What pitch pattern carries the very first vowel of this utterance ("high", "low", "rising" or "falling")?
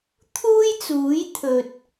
high